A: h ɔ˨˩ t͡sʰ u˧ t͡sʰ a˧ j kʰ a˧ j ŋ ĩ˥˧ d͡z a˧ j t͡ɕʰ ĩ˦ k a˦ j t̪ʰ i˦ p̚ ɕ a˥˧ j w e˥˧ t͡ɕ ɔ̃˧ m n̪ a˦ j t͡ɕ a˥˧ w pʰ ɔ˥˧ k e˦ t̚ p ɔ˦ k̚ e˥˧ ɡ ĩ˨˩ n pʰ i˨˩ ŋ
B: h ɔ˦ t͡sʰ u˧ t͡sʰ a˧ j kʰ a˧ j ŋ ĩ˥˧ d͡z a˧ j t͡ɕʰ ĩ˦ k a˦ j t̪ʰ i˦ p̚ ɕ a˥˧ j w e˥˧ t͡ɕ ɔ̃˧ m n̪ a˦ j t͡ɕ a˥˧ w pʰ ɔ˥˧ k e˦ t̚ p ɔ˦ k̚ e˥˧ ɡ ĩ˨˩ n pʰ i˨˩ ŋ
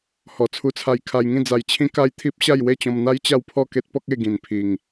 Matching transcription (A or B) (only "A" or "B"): A